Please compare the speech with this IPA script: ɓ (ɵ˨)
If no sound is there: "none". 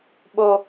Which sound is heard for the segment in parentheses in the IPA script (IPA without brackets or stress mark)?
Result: o˨